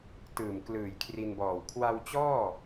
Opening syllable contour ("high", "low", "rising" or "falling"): low